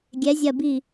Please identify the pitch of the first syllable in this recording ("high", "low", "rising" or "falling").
rising